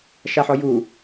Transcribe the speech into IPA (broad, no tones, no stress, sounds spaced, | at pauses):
ʃ a ħ ɔ j u